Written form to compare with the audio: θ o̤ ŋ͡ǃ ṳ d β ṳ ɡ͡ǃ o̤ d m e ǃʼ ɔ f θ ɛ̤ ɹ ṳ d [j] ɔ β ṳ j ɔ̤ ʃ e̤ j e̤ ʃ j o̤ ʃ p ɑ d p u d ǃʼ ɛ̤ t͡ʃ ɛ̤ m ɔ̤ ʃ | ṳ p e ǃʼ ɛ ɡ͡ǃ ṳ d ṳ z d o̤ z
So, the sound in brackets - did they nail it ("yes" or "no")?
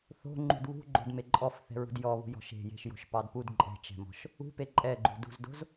yes